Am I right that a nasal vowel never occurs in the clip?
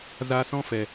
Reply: no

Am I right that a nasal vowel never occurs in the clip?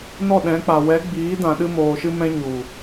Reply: no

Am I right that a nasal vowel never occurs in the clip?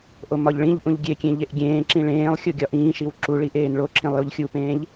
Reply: no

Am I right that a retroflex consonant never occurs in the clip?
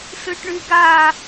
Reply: no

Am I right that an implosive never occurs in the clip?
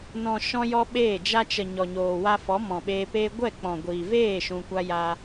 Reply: no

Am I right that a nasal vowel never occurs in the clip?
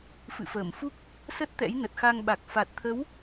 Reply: yes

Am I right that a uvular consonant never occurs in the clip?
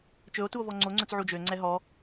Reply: yes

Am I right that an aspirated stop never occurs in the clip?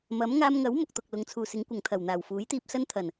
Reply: no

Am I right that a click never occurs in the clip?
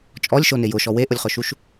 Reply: yes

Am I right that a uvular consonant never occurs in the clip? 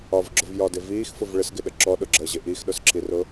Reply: yes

